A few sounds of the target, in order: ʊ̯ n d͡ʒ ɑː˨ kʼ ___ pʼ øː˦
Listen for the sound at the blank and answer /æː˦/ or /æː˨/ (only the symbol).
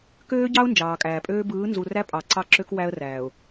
æː˨